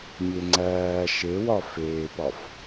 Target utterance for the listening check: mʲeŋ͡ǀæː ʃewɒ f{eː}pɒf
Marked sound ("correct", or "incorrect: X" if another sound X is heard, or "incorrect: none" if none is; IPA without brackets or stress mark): correct